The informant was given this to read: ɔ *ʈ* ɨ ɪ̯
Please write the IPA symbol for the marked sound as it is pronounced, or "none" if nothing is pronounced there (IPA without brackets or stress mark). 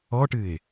ʈ